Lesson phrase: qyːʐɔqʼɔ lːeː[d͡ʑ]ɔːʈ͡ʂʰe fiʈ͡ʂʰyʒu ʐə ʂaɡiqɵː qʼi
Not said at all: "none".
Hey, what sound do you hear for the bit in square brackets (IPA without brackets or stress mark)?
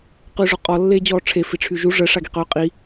d͡ʑ